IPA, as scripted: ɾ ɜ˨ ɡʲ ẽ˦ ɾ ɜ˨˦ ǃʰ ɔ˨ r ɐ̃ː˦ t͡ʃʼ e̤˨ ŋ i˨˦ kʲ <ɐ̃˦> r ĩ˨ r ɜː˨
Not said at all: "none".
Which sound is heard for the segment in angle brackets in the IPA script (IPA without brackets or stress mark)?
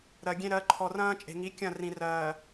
ɐ̃˦˨